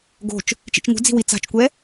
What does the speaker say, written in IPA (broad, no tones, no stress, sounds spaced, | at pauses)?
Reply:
ɡ o̤ t͡ʃ | t͡ʃ ḭ t͡ʃ ŋ ṳ d͡z i̤ w i t͡s a̤ t͡ʃ kʷ ɛ